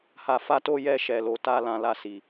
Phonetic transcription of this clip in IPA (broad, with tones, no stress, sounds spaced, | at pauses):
h a˧ f a˧ t o˧ j ɛ˧ ʃ ɛ˨ l o˨ t a˧ l ã˧ l a˧ s i˨